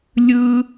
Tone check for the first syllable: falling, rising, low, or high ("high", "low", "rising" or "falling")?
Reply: high